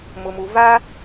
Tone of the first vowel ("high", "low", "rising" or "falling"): low